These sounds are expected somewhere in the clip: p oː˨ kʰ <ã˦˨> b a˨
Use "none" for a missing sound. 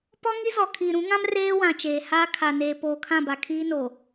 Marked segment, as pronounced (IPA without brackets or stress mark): ã˦˨